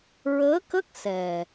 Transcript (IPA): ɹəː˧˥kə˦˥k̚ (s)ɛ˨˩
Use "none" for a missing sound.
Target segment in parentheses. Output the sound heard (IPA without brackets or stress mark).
s